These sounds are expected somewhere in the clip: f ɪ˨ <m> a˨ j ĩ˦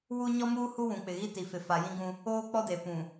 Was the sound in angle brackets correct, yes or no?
no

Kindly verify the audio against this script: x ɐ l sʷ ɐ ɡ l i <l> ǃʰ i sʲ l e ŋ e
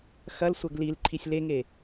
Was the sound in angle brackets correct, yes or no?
yes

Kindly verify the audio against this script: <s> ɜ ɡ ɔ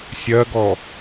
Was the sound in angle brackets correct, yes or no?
no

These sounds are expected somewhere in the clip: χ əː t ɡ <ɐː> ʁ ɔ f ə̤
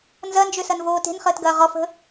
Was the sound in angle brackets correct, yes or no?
yes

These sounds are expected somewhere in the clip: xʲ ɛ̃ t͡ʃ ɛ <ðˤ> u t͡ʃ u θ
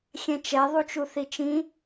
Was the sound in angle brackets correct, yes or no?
yes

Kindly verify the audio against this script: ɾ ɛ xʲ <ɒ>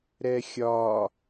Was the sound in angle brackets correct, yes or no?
yes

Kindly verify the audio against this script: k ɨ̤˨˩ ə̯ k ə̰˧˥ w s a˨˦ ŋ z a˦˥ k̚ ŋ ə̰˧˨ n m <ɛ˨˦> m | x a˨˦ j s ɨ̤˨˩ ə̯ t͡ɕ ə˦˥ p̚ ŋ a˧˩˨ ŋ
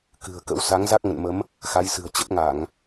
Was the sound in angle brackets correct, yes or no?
no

